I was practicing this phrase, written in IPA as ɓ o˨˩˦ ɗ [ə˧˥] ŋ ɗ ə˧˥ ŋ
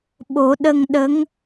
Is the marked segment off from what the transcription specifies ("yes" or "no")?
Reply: yes